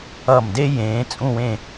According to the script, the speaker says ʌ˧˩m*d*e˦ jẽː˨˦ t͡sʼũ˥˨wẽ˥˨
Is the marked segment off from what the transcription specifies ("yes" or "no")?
no